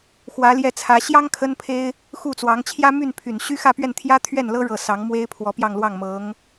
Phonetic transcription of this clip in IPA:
xwä˧˥ljɛ˥˩t͡sʰä˧˥ ɕjɑ˥ŋ kʰə˥npʰe˥ɪ̯ | xu˥˩t͡swɑ˧˥ŋ t͡ɕʰjä˥my˥˩n pʰy˨˩nɕy˥ xä˥˧pɥɛ˥˩n t̪ʰjä˥t̪ʰɥɛ˥˩nlɤ˥ ɻɤ˥˩ sɑ˧˥ŋmwe˥ɪ̯ pʰwɔ˧˥pjɑ˥˧ŋlwɑ˥˩ŋmɤ˧˥ŋ

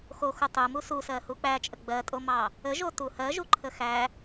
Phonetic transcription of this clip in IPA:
xoxu tˤumu susɜhu k͡pæt͡ʃʼə ɡ͡bɜtʼomɑ | əʒo tuhɜʒuǃʰə xæ

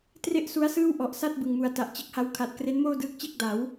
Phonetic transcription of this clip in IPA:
tre˥˩ʔsu˦˥a̯sɯː˥˩w ʔɔ˨˩ʔsa˥˩t̚ bɯ˨˩ŋmu˨˩a̯ ta˨˩ʔt͡ɕe˦˥k̚ha˦˥wkʰa˨˩t̚ kre˦˥nmoː˥˩ dɯː˦˥k̚t͡ɕe˥˩k̚da˩˦w

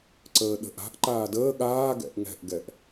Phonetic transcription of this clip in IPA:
ǀəːɗə̤ʔa̤ʔ ǃaːdəː ɠaːɡɛ̰ʔ ŋɛ̤ʔɡɛʔ

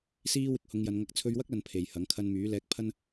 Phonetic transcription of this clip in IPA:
siː˥wɪ˧k̚ hʊ˨˧ŋjɐ˨˧nŋɐ˧k̚ t͡sʰɵ˧ɥwɐ˥k̚lɐ˨n pʰe˨jhɐ˨˥ŋ kʰɐ˧nmyː˨˥lɛː˧k̚pʰɐ˥n

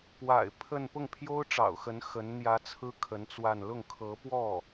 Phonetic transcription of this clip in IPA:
pwa̰˨˩ɪ̯ pʰə˥˧n pʊ˥˩ŋpʰjo˥ʊ̯ʈ͡ʂɑ̰˨˩ʊ̯xə˧˥n xə˧˥n n̪jä˧˥ t͡sʰɹ̩˥kʰə˧˥n t͡swa˥˧n lʊ˥˩ŋkʰɤ˧˥pwɔ˥˩

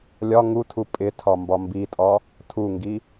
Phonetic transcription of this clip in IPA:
lʲɒ ŋutʰu pʼɪ tʰɒmbɒmbitʼɒ | tʰuŋɡi

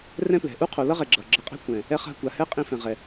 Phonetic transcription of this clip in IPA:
rɛ̃˦plɛ̤˨ ʔu˦qʰo˨lʌ˦ʁɛ˨ ɡ͡ǁʌ˨ ɡ͡ǁʌ˧qʼɛ̤˦ kʷɛ̃˨ | ɛ˧ χa̤˧kʷa˨ hɛ˦qʼĩ˧fɛ̃˨ʁɛ˨

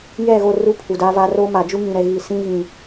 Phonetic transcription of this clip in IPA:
jɛ˦˨ɣo˦˨ ru˦pʰu˨da˦va˦ ro˦ ma˨d͡ʒu˦ ŋĩ˨ɾɛ˨ ɣi˨sĩ˦ ɣĩ˨

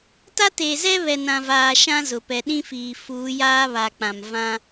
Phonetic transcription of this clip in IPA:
ta˦teː˨zɛ˦ βɛ˨nã˨vaː˨ ʃã˦zʊ˨ pɛ˨ɗĩ˦fiː˨ fuː˨˦jaː˦βa˨ k͡pã˨m vã˦

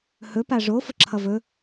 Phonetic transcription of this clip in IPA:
hɵpa ʐo fəǁʰʌvɵ

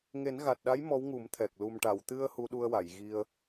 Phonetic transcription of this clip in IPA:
ŋe˨˩˦nɣa˨˩t̚ɗa˧˥j mɔ˧˥wŋu˨˩˦mt̪ʰɛ˨˩k̚ lu˨˩mʈa˨˩˨wt̪ɨ˧ə̯ hu˧ɗu˧ə̯wa˨˩˨j ɣi˧ə̯

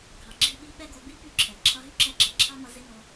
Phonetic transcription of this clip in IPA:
ɡʱɑ˨ɡ͡ǁi˦˨ɓi˦ ɓɛ˦ɡo˧ bi˦py˦˨ǁʰɛ˨ ǁʰʌ˧ɦy˦ǁɛ˧ǁʌ˨ ǁʰɑ˦mʌ˧ zɪ˦no˧

